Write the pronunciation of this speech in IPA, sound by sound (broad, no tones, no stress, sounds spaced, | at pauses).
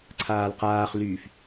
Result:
ǀʰ aː l q aː χ l yː f